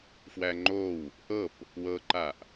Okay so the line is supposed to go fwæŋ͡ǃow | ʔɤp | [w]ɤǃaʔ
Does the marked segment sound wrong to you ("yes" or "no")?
no